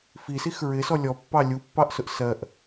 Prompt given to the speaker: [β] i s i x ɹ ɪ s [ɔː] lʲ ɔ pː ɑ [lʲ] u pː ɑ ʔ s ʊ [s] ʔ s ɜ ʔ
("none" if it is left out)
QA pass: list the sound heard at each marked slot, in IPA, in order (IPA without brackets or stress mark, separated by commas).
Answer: f, ɔ, lʲ, none